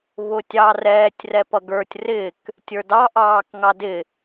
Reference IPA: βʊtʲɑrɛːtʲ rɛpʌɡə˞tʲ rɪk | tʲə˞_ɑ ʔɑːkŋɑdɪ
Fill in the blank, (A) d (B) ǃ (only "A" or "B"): A